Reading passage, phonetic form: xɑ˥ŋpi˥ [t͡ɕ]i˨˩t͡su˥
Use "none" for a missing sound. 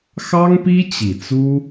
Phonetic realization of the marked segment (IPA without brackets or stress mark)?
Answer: t͡ɕ